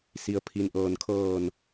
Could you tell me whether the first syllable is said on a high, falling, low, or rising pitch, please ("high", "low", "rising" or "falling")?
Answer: low